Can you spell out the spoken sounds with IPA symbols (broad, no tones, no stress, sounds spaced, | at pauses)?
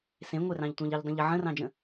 s ẽ ŋʷ e r ɑ̃ ʎ tʷ ɑ̃ ʎ ɘ ʎ dˤ ə̃ ʎ ə ʕ ə̃ r ɑ̃ d͡ʒ ə̃